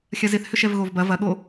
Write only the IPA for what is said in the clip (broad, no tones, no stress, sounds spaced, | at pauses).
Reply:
xʲ ɐ z ɪ θ h ʏ ʃ ɛ v ɣ o v b ɐ v ɐ ɠ o